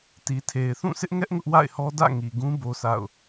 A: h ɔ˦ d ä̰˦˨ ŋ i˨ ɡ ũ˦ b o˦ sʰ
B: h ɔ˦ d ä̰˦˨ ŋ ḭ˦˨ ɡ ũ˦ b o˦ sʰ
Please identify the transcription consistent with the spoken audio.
A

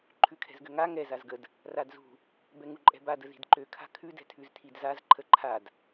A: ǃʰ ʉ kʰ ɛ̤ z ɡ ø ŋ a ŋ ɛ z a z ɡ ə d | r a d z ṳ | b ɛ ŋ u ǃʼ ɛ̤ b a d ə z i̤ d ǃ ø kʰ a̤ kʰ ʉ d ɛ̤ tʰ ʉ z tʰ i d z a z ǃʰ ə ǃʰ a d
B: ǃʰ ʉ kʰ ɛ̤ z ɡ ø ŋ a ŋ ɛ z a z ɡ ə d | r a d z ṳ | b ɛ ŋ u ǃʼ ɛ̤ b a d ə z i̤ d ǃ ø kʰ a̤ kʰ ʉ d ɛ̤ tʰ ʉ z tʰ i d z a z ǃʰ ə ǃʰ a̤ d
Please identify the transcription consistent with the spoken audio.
A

